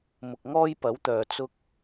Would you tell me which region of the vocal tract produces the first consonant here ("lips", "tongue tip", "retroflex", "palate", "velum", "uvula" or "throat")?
lips